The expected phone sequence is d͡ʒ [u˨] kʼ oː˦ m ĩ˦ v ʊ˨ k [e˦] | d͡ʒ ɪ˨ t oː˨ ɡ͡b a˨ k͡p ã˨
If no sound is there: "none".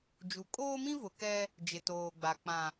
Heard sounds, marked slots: u˨, ɛ˦

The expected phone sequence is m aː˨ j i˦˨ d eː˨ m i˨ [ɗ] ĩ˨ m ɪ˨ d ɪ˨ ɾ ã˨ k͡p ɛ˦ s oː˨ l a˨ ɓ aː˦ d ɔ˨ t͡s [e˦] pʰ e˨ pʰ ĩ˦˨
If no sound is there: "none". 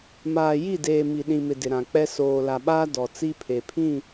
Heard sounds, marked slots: ɗ, i˦

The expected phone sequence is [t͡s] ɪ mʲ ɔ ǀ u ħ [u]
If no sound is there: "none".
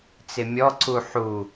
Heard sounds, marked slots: t͡s, u

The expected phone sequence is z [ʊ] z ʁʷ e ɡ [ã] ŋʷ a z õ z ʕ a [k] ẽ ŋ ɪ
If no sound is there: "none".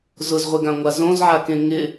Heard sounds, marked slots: ʊ, ã, k

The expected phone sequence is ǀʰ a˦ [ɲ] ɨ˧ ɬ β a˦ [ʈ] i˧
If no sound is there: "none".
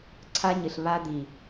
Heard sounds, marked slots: ɲ, d̪

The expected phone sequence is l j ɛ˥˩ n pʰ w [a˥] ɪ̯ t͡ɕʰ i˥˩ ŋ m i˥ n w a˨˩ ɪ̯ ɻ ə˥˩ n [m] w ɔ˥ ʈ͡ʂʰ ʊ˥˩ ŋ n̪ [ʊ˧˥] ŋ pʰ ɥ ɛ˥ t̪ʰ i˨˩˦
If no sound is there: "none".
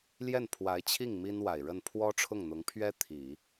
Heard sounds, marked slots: a˧˥, pʰ, ʊ˧˥

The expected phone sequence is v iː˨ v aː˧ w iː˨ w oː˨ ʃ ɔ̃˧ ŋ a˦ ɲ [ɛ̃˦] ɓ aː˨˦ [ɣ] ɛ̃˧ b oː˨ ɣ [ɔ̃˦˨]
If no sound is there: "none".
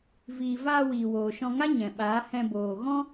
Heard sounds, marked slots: ɛ̃˨, h, ɔ̃˦

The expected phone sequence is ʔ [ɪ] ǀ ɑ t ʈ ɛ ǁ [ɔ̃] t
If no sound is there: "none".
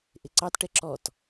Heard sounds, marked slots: ɪ, ɔ

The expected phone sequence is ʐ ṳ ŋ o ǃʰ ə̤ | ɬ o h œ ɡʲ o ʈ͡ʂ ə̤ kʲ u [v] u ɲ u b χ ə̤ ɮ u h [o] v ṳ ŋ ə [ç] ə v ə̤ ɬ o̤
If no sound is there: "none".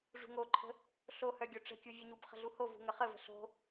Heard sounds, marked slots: vʲ, o, χ

